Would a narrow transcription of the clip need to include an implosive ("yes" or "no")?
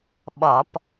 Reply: yes